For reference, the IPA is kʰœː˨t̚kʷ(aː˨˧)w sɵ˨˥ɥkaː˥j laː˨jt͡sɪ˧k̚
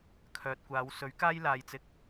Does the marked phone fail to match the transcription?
no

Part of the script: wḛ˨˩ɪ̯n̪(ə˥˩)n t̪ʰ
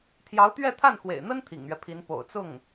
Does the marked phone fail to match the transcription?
yes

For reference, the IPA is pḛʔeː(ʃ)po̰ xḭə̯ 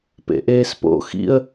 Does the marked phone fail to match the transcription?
yes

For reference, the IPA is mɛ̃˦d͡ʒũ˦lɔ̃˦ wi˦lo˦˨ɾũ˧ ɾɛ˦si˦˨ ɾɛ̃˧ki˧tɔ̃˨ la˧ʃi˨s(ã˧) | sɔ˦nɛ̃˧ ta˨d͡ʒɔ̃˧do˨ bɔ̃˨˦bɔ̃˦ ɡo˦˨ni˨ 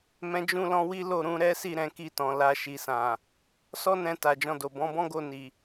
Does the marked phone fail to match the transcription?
yes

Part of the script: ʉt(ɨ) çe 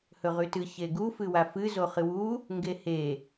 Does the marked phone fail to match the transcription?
no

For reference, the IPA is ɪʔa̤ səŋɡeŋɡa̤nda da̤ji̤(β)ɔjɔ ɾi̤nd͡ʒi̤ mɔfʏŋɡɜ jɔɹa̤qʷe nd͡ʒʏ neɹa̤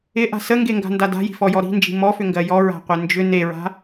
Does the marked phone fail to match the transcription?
yes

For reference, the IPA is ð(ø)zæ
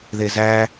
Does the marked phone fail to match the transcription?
yes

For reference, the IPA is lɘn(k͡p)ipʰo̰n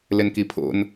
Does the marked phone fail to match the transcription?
yes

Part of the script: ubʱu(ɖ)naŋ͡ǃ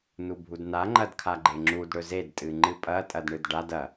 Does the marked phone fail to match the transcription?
yes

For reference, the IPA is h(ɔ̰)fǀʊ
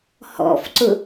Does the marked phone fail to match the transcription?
no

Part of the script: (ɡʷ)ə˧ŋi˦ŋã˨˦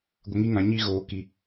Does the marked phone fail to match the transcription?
no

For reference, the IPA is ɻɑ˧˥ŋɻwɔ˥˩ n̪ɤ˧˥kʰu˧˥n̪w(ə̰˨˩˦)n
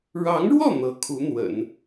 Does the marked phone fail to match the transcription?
no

